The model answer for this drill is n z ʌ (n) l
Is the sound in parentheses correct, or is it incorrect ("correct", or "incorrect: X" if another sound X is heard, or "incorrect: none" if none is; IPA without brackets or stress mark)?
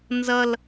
incorrect: none